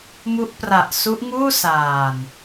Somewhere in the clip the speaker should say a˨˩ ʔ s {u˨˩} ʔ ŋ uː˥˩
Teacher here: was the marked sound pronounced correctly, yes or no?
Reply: no